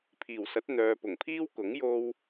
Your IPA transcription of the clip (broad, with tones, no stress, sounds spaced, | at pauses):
pʰ iː˨˩ w s ɐ˨˥ t̚ n̪ œː˨ p ʊ˨˩ ŋ pʰ iː˥ w k ʊ˨˥ ŋ j o˧ w